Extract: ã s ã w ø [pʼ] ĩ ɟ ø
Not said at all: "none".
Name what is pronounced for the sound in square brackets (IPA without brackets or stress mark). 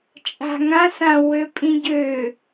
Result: pʼ